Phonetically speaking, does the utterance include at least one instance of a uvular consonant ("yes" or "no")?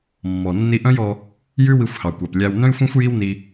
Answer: no